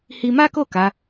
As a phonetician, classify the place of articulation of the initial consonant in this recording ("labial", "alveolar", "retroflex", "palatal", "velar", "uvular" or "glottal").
glottal